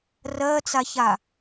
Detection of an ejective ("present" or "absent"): absent